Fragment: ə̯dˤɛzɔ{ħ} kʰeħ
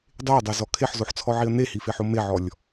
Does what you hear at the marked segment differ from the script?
yes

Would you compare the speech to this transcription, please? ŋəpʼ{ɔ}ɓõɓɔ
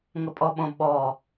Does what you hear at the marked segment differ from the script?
no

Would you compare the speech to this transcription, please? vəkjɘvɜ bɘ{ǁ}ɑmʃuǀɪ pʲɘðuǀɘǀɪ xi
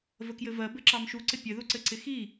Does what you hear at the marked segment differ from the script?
no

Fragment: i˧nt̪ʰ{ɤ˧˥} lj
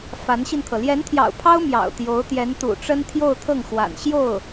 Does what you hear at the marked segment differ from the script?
yes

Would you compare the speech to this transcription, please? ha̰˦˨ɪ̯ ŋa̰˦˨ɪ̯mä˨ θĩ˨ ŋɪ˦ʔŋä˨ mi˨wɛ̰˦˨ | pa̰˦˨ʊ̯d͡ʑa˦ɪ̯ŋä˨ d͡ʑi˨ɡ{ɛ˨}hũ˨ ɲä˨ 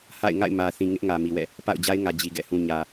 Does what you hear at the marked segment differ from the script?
yes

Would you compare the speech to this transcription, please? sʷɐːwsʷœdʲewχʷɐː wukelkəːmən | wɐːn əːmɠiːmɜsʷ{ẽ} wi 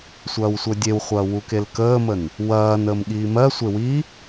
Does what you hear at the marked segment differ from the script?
yes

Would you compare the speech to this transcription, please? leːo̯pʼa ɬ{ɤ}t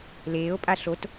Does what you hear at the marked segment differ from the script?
yes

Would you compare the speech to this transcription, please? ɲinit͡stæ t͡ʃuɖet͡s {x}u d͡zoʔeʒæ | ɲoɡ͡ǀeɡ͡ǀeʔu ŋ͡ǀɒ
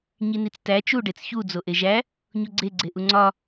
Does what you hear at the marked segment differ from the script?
yes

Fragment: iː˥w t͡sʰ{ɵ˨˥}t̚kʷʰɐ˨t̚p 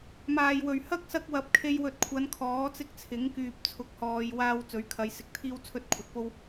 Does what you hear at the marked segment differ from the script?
yes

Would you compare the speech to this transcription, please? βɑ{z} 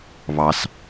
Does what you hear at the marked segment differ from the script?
yes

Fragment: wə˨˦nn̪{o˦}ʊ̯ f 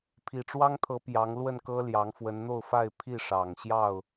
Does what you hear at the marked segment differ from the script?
yes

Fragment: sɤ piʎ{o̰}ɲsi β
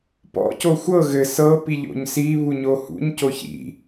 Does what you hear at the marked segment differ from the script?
no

